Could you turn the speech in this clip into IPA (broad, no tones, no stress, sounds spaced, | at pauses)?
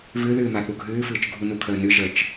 v ɨ ð ɨː m a θ u ɡʱ ɨː f ɨː t͡ʃ ɡʱ u n u kʰ əː n ɨ ʒ ə t͡ʃ